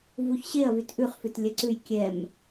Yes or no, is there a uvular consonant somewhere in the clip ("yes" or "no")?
yes